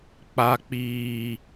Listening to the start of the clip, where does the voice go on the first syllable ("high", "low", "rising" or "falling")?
high